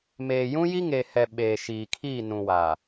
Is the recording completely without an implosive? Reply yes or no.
no